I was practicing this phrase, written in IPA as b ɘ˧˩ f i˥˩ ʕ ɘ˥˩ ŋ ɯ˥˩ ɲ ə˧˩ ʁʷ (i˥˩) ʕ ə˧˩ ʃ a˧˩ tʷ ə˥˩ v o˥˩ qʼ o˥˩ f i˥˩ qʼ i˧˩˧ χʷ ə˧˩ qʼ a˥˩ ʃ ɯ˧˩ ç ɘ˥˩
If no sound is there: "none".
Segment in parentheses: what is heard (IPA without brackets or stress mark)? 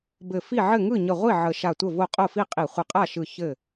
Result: i˥˩